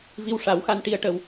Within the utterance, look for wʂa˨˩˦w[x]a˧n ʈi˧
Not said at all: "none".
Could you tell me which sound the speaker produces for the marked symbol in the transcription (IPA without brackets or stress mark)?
x